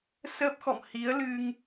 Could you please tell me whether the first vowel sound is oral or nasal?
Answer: oral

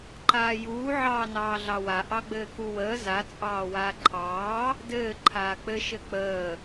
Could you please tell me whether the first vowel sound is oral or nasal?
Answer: oral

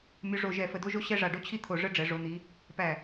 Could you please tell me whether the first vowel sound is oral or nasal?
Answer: oral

